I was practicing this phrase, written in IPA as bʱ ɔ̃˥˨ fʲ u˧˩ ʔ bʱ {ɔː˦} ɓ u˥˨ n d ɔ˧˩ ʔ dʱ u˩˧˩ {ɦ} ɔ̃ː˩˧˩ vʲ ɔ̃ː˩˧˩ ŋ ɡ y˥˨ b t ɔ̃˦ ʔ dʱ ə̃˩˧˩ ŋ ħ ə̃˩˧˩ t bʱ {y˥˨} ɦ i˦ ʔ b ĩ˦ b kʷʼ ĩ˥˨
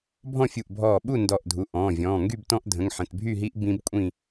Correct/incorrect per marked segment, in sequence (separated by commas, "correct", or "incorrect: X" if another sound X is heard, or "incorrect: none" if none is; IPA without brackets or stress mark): incorrect: ɔː˧˩, incorrect: ʔ, correct